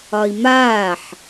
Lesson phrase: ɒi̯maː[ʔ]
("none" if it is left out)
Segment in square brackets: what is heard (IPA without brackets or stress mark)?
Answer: ħ